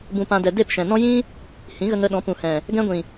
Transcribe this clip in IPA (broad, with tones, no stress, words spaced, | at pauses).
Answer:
bũ˨pã˨ dɛ˨de˦˨pʃɛ̃˨nɔ̃˦ jĩ˦ | hĩ˨˦ɣə˧ŋə˧ɗɔ̃˨˦ pũ˨hɛ̃˨ | ɡɛ̃˧ɡʷĩ˨